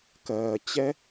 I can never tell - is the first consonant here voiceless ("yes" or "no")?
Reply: yes